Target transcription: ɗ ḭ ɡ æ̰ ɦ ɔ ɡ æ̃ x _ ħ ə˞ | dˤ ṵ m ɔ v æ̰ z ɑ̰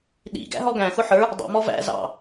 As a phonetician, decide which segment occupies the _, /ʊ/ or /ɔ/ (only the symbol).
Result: ʊ